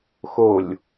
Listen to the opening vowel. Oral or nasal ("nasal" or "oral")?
oral